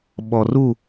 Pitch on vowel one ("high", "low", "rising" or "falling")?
low